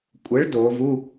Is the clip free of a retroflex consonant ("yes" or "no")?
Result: no